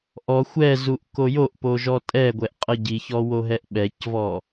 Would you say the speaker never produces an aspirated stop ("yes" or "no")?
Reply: yes